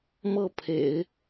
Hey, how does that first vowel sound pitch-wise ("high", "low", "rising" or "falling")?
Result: falling